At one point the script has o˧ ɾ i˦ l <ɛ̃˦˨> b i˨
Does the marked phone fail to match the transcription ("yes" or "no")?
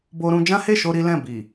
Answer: no